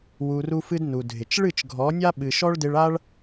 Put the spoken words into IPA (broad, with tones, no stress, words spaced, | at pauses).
wu˧ru˦fɨ˦d nu˨dʱɪ˨t͡ʃ ɭɨ˦˨t͡ʃɡʱɔ˨˦nʲa˦ ɓɨ˨ʃɔ˦ɭdɪ˧ɭa˦ɭ